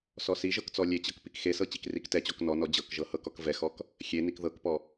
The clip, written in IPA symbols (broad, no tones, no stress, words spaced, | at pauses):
sɔsiʒɤk t͡sɔlʲet͡ɕɤk pikxesɤ t͡ɕikriktɛt͡ɕɔk nɔnɔ d͡ʑɤkʒɤ hɤkɔkvɛxɔk | xʲenik ðɤkpɔ